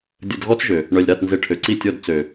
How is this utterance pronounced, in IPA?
dʲə˧d ɣɔ˦t͡sʒø˨ | ɳœ˨lʲɾa˦˨t nze˧ʈʰø˨ǀi˦˨tʲɔ˦˨d t͡sø˨

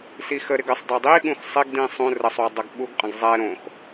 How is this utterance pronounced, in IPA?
sixəɾɪɡ əsˤdˤo dˤiɠũx sˤɪɡdĩ sˤũ rəsˤwʏ dˤʌɡɓuɡqʼə̃ɡ zˤɛ ɾõx

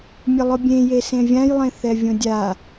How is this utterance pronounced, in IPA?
mʲʊlˠʊbʲẽje sẽvʲãjlˠẽ θɛvʲõdʲa

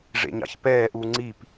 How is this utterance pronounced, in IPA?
ʐḛɲɑ̰çpɛːʔu ŋ͡ǀip

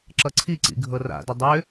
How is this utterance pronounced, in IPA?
ǁʌǀʰiǀḭ ɡʱɤra̰dʏ dˤʏ

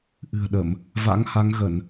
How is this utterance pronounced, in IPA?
ʔɨ̤˨˩ə̯ɗə˧˩˨m | va̰˧˥ŋha˨˦ŋɣə˧˩˨n

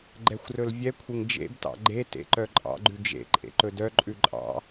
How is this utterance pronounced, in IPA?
ɡ͡ǃɛxʷrɵlvʲɛkʷʰeŋ d͡ʒḛbtɑ̰ ɡ͡ǃe tḛǃœ ǃʼɑ̰ɡ͡ǃʉ d͡ʒḛ ǃʼḛǃɵdœǃʼʉ ǃʼɑ̰

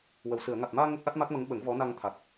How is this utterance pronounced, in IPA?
wə˨˩˨wsɨ˨˩˨ə̯ ŋa˨˩t̚maː˧ ŋə˦˥k̚ʔa˦˥t̚ma˦˥k̚mə˧˥ŋ ɓə˨˩˦ŋvɔ˧˥na˧ŋt̪ʰa˨˩t̚

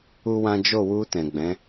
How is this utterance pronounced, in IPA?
u˦wã˦ d͡ʒo˦˨wu˧ tɛ̃˨ɡ͡bɛ̃˨˦

